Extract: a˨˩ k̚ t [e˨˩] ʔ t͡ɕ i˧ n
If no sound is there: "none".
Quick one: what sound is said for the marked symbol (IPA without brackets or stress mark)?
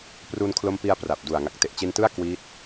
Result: e˨˩